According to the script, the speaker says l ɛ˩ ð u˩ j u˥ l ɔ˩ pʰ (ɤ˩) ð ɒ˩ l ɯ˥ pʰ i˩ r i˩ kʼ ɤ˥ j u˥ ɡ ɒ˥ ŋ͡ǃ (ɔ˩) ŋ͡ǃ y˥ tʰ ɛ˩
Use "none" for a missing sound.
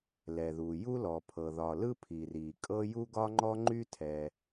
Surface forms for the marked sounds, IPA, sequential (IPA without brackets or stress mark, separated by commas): ɤ˩, ɔ˥